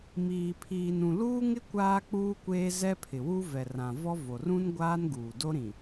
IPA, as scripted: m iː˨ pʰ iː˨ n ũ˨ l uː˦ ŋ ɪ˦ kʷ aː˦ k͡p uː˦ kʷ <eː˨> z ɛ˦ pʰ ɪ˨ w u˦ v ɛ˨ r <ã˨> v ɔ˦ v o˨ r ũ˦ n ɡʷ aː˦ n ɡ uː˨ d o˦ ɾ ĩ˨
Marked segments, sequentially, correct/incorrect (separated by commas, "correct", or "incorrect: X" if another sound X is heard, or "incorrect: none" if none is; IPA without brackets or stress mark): incorrect: eː˦, correct